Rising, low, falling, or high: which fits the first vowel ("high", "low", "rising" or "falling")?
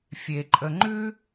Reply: low